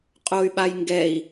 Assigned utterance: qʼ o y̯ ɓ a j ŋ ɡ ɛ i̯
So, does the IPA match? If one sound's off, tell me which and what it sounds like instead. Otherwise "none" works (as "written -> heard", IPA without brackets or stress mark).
none